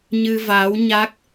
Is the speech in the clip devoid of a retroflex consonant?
yes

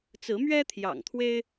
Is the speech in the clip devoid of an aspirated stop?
no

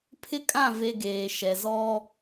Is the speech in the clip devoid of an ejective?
no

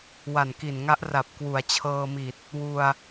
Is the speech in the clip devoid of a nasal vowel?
yes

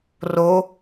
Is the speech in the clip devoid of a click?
yes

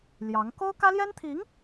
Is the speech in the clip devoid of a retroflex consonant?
yes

